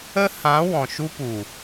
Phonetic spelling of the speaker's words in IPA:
ə˦ h ã˨˦ w ɔ̃˨ ʃ u˦ p u˨

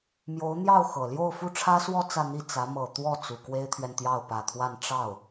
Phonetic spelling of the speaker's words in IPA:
m j o˧˥ ʊ̯ n̪ j ɑ˥˩ ʊ̯ x ɤ˨˩ l j o˥˧ ʊ̯ f u˥˩ ʈ͡ʂʰ ä˥ s w ɔ˥˧ t͡s ä˥˧ n̪ i˥˩ t͡s ä˧˥ m ɤ˨˩ t̪ w ɔ˥˩ t͡s u˨˩ k w e˥ ɪ̯ t̪ʰ ɥ ɛ˨ n t̪ j ɑ˥˩ ʊ̯ p ä˨˩ t̪ʰ w a˥˧ n ʈ͡ʂ ɑ˥˩ ʊ̯

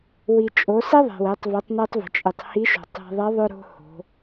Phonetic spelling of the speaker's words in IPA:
w i˩ t͡ʃʼ o˩˧ s i˥ ðˤ e̤˩ w e˩˧ tˤ v i˩˧ tˤ n i˧ tˤ v ə̤˩ t͡ʃʼ i˩ tˤ h i˧˥ ʃ o̤˩ tˤ e̤˧ ðˤ i˧˥ ðˤ ʏ˧ ɾ o̤˧ h o̤˩˧

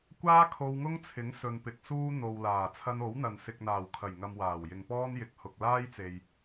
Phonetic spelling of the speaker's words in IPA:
kʷ aː˥ kʰ o˧ w ŋ ʊ˥ ŋ t͡sʰ ɪ˨˥ ŋ s ɵ˨ n p ɪ˨ k̚ s uː˥ n̪ o˨ w l aː˨˩ t͡sʰ ɐ˧ n o˨˥ w n̪ ɐ˨ n s ɪ˨ k̚ n̪ aː˨˩ w kʰ ɐ˨˩ j ŋ ɐ˨ m w aː˨˩ w j ɪ˨ ŋ p ɔː˥ n j ɪ˨˥ k̚ h ʊ˨ k̚ l aː˥ j t͡s e˨ j

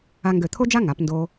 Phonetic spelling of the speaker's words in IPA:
a˧ ŋ ɡ ø˧˩ t̪ʰ o˥ d͡ʒ a˥ ŋ a˩˧ p n d o˧

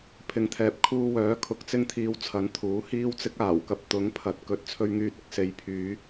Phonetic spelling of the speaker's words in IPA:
pʰ ɪ˨˧ ŋ t̪ʰ ɛː˨ p̚ kʰ uː˧ w œː˨˥ kʰ ʊ˨˥ k̚ t͡s ɪ˧ ŋ t̪ʰ iː˨ w t͡sʰ ɐ˨˥ n t̪ʰ uː˨˥ h iː˥ w t͡s ɪ˥ k̚ aː˨˩ w k ɐ˧ p̚ t̪ ʊ˨˥ ŋ pʰ ɐ˨˥ t̚ k ɵ˨ t̚ t͡sʰ ɵ˧ ɥ ŋ yː˧ t̚ ɪ˨ k̚ s e˨˧ j pʰ yː˨˧

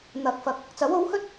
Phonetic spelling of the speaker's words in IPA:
n̪ ɐ˨ k̚ f ɐ˨˥ k̚ | t͡s ɐ˨˥ w o˨˥ w h ɵ˥ t̚

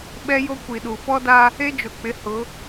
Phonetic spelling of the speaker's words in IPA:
ɓ ɛ˦ j o˦ kʷ i˨ ɗ u˨ f ɔ˦ d a˦ | e˦ d͡ʒ ʊ˨ k͡p ɪ˨˦ h ʊ˨˦

